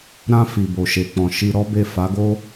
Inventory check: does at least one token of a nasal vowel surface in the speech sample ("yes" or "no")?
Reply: yes